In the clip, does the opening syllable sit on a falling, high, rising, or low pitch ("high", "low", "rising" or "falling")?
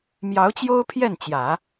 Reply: rising